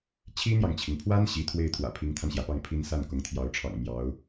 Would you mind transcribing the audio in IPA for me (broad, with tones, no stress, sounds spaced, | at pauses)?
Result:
t͡ɕʰ i˥ n̪ j ɑ˨ ŋ t͡ɕʰ i˩ ŋ pʰ w a˥ n ɕ i˧˥ t̪ʰ w e˥˩ ɪ̯ t̪ʰ w ä̰˨˩ pʰ i˧˥ ŋ t̪ʰ a˧ n ɕ j ä˩ p ɑ˥˩ ŋ pʰ i˥ n s a˥˩ n k ʊ˧˥ ŋ t̪ʰ j ɑ˧˥ ʊ̯ ʈ͡ʂʰ ɑ̰˨˩ ŋ m j ɑ˧˥ ʊ̯